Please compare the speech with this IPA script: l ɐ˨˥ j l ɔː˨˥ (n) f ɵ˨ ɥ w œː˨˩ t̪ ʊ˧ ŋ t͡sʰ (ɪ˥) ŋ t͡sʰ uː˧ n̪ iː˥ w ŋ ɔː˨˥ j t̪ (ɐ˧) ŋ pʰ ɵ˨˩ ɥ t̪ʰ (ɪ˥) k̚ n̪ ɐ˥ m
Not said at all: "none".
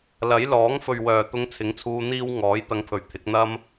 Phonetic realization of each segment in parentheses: ŋ, ɪ˨˥, ɐ˧, ɪ˨˥

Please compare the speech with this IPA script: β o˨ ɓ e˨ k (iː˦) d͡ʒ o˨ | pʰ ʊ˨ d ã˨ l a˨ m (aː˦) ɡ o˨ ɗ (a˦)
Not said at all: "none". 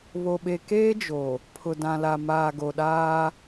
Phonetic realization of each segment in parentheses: eː˦, aː˨, aː˦

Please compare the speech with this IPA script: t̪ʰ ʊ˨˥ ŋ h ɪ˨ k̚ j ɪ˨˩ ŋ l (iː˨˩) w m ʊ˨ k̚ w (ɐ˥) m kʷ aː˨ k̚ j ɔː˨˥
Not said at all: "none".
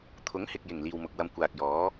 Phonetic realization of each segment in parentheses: iː˨, ɐ˧

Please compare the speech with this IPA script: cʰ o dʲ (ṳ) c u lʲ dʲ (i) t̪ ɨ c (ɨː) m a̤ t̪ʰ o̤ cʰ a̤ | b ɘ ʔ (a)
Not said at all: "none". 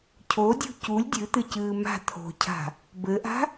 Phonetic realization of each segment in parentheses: ṳ, ɨ, ɨː, a̤

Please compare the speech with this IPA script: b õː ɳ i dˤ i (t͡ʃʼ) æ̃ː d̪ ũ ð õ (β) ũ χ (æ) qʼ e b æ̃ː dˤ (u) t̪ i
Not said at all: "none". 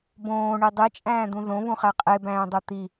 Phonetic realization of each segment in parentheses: t͡ʃʼ, β, æ, o

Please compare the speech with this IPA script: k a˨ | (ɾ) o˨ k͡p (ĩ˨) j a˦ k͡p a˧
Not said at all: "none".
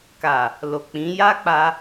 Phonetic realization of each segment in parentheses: l, ĩ˨˦

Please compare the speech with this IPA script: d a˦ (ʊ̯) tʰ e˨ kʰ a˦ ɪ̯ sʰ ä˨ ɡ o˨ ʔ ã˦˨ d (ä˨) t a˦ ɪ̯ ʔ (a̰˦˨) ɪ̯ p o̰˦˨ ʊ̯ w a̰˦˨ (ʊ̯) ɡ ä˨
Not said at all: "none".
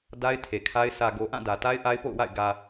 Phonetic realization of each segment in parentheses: ɪ̯, ä˨, a˦, ɪ̯

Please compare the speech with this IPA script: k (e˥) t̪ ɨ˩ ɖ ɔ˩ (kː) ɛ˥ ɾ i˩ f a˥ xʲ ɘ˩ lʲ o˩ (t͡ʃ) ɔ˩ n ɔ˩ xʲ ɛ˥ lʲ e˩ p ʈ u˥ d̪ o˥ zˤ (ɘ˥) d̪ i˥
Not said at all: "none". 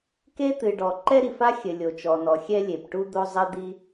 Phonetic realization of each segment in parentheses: e˥, ǃ, t͡ʃ, ɘ˥

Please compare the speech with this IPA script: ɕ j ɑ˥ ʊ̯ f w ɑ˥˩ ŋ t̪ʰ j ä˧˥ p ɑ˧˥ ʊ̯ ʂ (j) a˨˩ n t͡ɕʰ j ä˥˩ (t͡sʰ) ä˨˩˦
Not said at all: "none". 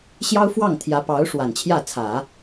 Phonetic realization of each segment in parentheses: w, t͡sʰ

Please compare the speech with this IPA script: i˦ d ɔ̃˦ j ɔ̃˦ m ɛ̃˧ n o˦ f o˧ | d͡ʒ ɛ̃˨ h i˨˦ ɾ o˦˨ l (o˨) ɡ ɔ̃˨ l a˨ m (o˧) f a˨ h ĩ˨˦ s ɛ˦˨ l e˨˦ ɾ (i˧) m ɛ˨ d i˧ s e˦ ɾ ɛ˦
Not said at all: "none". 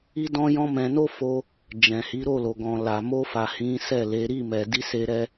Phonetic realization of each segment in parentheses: o˨, o˧, i˦˨

